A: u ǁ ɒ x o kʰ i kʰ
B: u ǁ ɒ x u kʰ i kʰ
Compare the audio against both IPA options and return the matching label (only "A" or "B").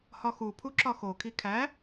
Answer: A